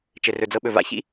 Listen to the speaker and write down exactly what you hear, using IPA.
t͡ʃ ɘ˩ r ɵ˩ d͡z ɤ˧ ɓ ɵ˩ v a̰˥ ç ḭ˥

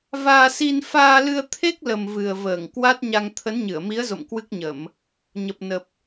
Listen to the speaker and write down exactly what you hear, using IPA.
v aː˧ s i˧ n f aː˧ l ɨ˧ ə̯ t̪ʰ e˦˥ k̚ l ə˨˩ m v ɨ˨˩ ə̯ v əː˧˩ ŋ k w a˦˥ t̚ ɲ a˧ ŋ t̪ʰ ə˨˦ n ɲ ɨ˧˩ ə̯ m i˨˦ ə̯ z o̰˧˨ m k w ɨ˦˥ k̚ ɲ ə˧˩˨ m | ɲ ə˨˩ p̚ n ə˨˩ p̚

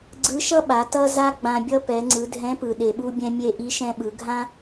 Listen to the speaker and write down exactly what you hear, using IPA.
ɡ͡ǀ ɯ˧˥ ʃ ʌ˥ ɓ a˩˧ t ʌ˥ z a˥ ɡ͡b ã˧ bʲ ʌ˥ p ɛ˩˧ ŋ͡ǀ ɯ˩˧ dʱ ɛ̃˧˥ p ɯ˩ ɗ e˩ ɓ u˧ bʲ ɛ̃˧ mʲ e˧ ʔ i˧˥ ʃ ɛ̃˧ ɓ ɯ˩˧ ɡʱ ã˥

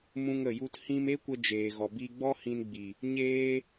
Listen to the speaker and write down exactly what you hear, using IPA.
m ũ˧ ŋ ə˨ j u˧ t h ĩ˧ m e˦ kʷ ə˧ d͡ʒ eː˨ ɣ ɔ˨ b i˧ ɡ͡b ɔ˦ h ĩ˧ n ɡ͡b i˨ | ɲ eː˧

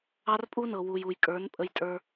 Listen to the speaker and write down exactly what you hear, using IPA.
ɑ˦ r pʼ u˦ n ɤ˨ w u˨ j u˨ j kʼ ə˞˨˦ n pʼ ə˦ j tʼ ə˞˦

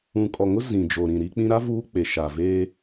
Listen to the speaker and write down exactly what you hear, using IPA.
ũ˨ kʼ ɔ˨ ŋ ʊ˦ z ĩ˨ d͡ʒ o˨ ɾ ĩ˨ ɾ i˦ k͡p ĩ˦ ɾ a˦ v uː˦ k͡p e˨ ʃ a˨ v eː˦

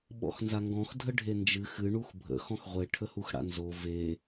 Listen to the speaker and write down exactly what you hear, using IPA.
ɓ ɔ̰ x n z a ŋ ɡ ɔ̃ x dʱ ə ɖʱ e n d͡ʒ ɨ x ɨ ɳ u x bʱ ə̰ x ɔ̃ x ʁʷ e ʈʰ ə h u x ɽ a̰ n z o v e

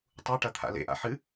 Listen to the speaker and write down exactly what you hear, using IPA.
tˤ u ʈ ɐ t̪ʰ a̰ l ḛ ʔ a̰ ħ ɨ

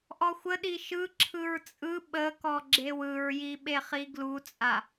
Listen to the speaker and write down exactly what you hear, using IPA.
ʔ ɔ xʷ ə ɗ i ʃ ɯ ǁʰ ɯ ɹ t͡sʼ ɯ ɓ ə k ɔ ɡ͡ǁ e w ɯ ɹ j i ɓ e χ i ɡ l u t͡sʼ a

